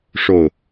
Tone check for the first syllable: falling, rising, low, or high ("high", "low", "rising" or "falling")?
low